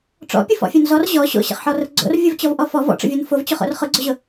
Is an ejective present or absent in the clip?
absent